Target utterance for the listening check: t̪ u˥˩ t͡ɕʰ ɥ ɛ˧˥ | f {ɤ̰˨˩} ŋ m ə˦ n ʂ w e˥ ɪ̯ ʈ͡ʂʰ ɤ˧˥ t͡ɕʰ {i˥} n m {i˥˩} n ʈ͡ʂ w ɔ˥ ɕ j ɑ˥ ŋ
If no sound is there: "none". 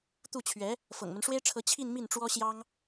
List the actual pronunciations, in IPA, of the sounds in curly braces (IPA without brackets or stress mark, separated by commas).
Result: ɤ̰˨˩, i˥˧, i˥˩